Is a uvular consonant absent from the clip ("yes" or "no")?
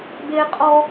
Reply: no